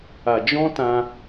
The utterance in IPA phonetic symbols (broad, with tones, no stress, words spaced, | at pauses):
a˨d͡ʒɔ̃˦tã˧